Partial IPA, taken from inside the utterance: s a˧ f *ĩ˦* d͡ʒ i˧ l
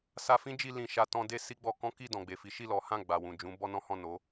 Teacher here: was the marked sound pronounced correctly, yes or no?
yes